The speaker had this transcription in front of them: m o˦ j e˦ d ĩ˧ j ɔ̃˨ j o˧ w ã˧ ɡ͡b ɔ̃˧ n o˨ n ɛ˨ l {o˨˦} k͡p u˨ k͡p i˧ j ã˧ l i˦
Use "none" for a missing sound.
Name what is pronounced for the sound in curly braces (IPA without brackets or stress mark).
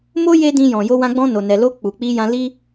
o˧